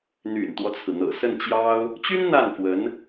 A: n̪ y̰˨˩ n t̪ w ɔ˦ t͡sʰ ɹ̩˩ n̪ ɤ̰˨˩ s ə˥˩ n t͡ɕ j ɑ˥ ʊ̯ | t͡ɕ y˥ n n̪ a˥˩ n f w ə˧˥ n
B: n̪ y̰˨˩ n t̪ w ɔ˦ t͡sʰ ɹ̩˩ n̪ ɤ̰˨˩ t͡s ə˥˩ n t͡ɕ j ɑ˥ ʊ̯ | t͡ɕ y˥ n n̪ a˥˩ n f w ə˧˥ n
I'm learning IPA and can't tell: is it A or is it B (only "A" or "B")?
A